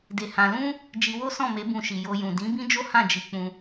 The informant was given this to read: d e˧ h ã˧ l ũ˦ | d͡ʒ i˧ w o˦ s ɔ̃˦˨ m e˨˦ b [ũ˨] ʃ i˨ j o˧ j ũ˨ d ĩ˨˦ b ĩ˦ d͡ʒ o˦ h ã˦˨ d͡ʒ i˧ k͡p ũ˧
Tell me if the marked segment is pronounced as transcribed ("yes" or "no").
no